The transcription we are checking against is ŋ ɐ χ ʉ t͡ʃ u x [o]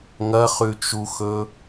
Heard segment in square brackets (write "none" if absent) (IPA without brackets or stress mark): ɵ